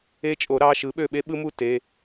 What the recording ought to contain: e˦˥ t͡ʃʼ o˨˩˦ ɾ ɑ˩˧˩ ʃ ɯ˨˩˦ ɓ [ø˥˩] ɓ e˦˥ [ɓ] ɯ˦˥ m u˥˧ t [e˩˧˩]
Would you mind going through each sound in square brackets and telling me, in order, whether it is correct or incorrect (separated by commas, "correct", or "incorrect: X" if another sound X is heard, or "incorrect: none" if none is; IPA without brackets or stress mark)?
correct, correct, correct